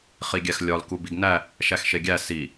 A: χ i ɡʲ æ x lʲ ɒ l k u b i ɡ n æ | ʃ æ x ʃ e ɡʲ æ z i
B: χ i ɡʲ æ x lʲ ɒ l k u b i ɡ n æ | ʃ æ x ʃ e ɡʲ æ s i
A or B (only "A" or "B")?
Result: B